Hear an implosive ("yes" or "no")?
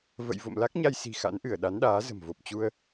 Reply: yes